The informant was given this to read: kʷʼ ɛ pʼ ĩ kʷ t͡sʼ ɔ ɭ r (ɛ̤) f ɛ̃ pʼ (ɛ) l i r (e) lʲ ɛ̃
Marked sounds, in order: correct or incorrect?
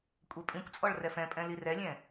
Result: incorrect: ɛ, incorrect: ɛ̃, incorrect: ɛ

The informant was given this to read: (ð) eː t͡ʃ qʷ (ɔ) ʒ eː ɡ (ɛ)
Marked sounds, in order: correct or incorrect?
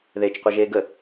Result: correct, incorrect: ʌ, incorrect: ə

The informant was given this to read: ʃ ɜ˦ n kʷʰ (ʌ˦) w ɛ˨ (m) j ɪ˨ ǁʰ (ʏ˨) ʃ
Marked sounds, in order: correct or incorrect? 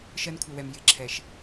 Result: incorrect: ʌ˨, correct, incorrect: ɛ˨

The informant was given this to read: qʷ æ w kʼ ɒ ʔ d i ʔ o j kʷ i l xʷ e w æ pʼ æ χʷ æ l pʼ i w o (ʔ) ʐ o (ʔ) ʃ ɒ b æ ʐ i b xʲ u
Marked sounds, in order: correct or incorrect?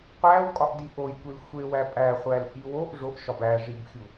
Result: correct, correct

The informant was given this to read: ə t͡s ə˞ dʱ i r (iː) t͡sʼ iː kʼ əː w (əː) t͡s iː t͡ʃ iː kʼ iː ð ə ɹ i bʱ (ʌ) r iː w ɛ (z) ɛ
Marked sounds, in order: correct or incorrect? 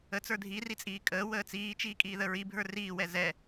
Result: incorrect: i, correct, incorrect: ə˞, correct

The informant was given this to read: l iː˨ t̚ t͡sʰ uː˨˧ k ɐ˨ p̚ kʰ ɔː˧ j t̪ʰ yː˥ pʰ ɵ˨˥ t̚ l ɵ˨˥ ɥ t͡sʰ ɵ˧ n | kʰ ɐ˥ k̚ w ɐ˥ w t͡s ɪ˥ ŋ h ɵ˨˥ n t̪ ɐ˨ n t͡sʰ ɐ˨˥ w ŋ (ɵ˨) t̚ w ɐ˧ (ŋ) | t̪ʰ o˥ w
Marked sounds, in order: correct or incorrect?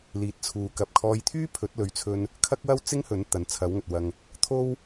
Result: correct, correct

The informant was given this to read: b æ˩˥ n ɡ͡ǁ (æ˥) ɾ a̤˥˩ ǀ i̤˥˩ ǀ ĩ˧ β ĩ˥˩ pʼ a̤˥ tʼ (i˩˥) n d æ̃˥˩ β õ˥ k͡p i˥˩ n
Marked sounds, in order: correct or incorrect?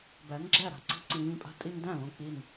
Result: incorrect: æ˥˩, incorrect: i˥

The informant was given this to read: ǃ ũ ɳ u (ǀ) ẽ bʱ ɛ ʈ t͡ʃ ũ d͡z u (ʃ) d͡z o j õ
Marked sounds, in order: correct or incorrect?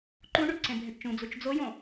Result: correct, incorrect: t͡ʃ

